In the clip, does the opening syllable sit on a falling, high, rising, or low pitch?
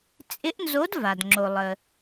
rising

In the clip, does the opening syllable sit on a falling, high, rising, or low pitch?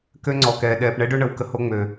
high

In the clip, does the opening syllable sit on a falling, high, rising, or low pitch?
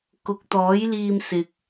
low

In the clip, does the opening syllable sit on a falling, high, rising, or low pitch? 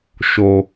low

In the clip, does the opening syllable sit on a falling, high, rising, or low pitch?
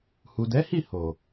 low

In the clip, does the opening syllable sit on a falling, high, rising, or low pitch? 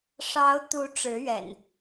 rising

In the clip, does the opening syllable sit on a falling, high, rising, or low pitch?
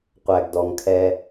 low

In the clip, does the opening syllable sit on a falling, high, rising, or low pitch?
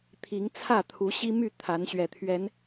rising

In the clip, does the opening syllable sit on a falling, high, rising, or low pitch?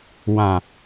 low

